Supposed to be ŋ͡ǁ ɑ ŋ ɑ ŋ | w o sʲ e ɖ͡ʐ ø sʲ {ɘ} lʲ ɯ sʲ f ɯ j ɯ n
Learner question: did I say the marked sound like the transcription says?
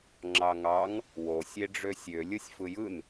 no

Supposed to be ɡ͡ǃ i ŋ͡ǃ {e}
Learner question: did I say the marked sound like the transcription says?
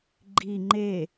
yes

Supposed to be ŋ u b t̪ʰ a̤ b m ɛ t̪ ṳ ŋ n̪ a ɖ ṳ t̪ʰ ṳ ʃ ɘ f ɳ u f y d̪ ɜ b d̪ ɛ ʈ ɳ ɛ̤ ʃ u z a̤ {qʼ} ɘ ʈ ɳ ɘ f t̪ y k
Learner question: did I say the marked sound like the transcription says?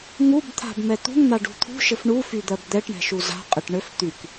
yes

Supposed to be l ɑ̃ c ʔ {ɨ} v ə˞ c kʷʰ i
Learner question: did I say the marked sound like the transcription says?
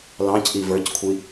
no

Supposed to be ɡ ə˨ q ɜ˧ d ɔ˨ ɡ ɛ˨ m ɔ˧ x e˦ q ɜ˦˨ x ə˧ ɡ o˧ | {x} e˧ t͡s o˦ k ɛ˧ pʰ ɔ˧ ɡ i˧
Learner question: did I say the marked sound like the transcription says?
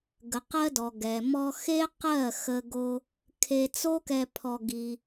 no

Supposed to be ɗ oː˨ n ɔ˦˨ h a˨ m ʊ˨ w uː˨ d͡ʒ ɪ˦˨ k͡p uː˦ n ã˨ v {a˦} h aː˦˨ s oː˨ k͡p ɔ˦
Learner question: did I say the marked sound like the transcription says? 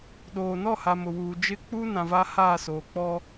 yes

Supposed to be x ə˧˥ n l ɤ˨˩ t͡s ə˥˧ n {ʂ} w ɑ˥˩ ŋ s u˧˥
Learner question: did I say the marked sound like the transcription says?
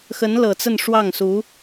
yes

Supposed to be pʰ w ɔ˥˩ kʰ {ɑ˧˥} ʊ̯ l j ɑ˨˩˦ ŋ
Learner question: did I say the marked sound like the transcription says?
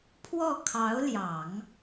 yes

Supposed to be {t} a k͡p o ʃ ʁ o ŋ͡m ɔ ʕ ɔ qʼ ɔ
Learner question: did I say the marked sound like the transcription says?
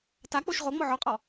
yes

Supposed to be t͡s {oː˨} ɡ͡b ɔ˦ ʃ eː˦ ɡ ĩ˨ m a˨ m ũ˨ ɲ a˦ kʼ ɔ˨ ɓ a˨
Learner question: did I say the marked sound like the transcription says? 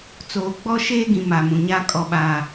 yes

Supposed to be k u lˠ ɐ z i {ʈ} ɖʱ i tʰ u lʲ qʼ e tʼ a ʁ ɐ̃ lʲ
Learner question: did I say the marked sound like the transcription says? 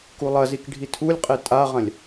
no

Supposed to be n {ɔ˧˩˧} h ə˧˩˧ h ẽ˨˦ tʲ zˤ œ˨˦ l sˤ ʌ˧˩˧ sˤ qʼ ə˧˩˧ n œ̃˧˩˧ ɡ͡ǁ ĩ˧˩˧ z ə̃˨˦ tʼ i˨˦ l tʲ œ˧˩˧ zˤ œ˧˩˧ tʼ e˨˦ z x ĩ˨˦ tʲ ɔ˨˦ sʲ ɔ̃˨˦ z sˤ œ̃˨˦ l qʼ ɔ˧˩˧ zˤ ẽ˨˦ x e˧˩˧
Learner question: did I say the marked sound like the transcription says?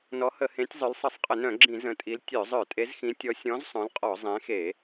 no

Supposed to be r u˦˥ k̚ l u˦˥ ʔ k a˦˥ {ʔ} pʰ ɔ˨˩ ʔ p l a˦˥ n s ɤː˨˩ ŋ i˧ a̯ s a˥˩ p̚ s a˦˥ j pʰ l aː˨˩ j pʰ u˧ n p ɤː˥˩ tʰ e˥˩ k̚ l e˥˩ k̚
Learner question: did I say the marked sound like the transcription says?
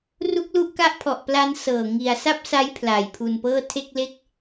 yes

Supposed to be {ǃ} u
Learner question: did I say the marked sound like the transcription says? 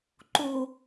yes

